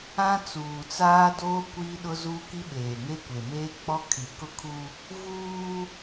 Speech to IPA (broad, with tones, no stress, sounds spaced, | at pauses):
ã˦ t͡s uː˨ t͡s aː˦ d oː˦ kʷ iː˦ ɗ ʊ˦ z uː˦ k i˦ ɓ eː˨ ŋ e˦ kʷ e˨ m eː˦ k͡p ɔ˦ kʰ i˨ k ʊ˦ kʰ u˦ | v uː˦